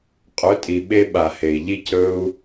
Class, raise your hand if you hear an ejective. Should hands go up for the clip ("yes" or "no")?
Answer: yes